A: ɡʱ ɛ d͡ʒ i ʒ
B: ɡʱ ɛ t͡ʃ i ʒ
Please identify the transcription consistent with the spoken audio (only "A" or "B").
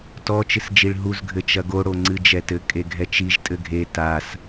B